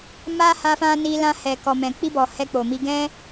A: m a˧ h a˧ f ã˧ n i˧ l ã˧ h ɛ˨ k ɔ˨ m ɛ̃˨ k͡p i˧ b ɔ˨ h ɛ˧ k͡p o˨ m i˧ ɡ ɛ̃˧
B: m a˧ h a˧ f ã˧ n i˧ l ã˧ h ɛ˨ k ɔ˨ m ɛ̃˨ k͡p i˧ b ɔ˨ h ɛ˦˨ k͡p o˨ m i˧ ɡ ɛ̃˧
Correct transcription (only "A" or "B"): A